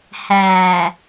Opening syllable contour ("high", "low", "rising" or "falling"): low